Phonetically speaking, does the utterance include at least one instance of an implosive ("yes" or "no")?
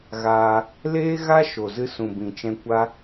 no